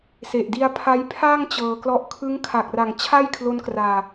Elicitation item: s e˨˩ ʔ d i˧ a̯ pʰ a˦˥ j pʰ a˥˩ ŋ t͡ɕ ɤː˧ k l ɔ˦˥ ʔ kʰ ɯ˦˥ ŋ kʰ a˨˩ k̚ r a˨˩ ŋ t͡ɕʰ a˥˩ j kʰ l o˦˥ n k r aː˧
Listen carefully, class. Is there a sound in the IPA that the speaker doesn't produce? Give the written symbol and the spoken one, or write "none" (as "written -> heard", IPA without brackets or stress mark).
none